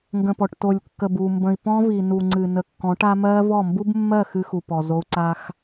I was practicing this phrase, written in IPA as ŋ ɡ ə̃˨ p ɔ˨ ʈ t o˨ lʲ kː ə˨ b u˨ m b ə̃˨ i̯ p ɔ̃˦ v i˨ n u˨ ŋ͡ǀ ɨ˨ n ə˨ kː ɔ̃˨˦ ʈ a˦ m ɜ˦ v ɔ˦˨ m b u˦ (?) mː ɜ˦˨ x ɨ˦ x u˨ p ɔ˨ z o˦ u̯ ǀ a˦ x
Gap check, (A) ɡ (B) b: B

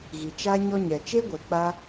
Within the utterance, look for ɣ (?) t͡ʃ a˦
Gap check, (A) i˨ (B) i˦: A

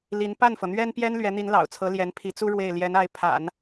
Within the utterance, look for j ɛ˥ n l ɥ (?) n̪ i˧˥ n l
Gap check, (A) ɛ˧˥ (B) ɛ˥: A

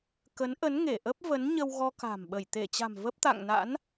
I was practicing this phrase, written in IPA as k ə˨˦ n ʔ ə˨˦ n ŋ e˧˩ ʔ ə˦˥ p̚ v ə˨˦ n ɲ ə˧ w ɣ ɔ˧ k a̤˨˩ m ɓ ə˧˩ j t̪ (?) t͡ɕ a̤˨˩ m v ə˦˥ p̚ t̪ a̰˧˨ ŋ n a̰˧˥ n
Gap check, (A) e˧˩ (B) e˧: A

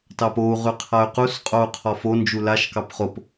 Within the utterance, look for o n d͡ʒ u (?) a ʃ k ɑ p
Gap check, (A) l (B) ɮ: A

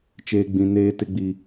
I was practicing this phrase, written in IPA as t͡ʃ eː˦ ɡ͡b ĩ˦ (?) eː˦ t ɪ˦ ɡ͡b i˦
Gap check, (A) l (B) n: B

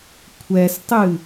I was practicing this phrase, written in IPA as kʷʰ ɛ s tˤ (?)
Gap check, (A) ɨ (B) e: A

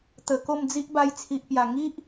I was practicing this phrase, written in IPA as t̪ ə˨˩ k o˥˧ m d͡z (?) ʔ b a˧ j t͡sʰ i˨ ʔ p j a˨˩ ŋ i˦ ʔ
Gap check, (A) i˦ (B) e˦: A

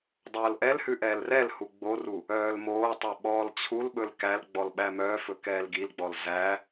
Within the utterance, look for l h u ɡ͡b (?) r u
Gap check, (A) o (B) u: A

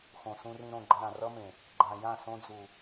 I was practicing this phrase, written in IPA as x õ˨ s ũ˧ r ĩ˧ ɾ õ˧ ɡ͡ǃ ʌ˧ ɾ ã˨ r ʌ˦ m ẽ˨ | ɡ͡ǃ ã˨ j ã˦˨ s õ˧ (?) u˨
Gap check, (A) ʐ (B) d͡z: B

